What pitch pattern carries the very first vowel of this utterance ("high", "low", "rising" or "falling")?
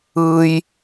high